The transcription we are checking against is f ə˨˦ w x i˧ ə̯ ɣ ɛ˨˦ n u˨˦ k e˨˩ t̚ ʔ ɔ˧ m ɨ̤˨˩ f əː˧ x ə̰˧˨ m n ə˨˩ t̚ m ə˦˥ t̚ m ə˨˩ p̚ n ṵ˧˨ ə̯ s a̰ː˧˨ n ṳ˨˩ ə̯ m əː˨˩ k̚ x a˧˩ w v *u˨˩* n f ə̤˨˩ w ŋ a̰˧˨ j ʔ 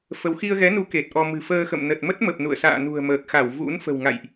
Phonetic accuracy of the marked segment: incorrect: ṵ˧˥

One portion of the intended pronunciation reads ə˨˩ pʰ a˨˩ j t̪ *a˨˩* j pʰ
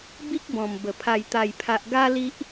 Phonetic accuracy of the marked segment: correct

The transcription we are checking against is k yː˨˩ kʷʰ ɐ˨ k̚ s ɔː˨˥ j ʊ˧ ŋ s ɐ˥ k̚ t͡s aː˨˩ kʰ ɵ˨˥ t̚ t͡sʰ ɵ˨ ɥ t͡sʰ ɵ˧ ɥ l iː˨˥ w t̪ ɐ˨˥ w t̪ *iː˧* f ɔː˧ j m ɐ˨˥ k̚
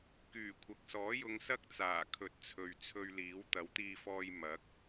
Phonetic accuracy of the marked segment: correct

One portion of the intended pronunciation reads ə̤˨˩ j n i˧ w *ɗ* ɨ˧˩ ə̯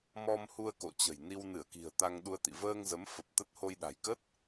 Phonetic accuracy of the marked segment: incorrect: n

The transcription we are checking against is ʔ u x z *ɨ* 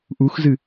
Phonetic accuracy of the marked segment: correct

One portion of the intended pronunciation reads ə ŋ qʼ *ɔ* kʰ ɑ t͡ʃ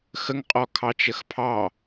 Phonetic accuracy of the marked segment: correct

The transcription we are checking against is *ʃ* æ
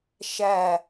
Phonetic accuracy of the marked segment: correct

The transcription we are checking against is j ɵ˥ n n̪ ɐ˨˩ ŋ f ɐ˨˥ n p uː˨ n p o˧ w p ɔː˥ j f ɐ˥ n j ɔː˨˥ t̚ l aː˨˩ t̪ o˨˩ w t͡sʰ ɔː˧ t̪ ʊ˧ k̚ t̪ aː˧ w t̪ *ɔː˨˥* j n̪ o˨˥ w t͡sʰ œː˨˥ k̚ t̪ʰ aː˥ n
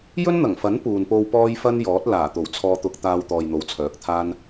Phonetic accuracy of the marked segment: incorrect: ɔː˨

